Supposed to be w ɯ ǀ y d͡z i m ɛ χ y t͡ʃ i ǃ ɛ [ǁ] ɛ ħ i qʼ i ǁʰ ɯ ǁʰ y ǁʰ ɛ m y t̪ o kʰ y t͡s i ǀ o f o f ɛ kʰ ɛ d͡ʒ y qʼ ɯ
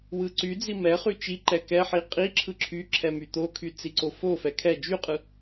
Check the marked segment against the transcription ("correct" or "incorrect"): incorrect